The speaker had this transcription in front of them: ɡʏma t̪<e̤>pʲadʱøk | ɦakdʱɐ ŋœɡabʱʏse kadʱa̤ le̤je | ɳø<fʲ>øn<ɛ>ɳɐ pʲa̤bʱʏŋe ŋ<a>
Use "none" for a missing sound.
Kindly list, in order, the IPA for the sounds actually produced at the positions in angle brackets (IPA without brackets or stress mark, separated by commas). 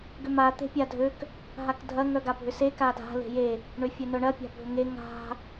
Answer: e̤, fʲ, œ, a̤